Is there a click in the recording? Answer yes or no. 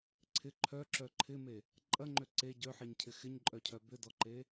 yes